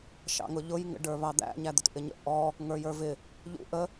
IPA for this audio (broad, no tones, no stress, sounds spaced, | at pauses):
ʃ ɑ̰ ŋ ʊ ʎ ʊ j ŋ ə̰ ɖ ə˞ β ɑ d̪ æ̰ ɲ æ d̪ ʊ t ʔ ɪ ɲ ə̰ ʔ ɔ | ŋ ə˞ j ə˞ v ɪ | ʎ ṵ ʔ ə